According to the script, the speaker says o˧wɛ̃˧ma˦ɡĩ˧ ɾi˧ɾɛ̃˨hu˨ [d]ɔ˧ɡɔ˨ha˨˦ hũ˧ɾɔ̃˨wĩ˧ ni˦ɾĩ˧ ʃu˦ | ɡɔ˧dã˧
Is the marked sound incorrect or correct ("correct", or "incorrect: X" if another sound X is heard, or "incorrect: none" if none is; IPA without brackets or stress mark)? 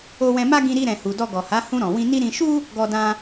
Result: correct